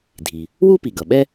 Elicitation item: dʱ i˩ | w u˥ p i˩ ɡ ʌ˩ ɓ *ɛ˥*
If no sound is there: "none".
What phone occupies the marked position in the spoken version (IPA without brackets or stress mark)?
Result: ɛ˥